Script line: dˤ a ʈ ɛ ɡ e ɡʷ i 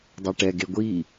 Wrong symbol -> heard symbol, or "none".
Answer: none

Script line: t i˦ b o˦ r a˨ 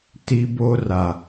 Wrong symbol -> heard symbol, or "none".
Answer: none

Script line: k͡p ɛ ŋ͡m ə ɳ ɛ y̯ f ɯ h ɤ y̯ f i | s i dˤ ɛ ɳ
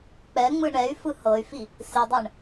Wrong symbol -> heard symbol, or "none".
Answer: ə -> ɯ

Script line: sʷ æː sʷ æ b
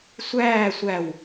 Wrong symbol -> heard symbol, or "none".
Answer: b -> w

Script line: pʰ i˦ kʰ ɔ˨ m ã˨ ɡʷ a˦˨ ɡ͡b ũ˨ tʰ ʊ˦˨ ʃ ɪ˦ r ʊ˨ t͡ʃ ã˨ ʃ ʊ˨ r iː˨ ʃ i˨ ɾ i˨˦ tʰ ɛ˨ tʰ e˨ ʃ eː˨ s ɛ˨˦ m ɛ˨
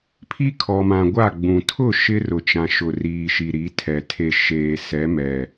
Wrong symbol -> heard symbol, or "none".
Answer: none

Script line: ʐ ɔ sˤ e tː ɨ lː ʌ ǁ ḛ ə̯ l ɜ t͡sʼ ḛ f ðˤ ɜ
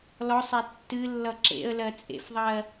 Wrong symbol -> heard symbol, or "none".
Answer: ʐ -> l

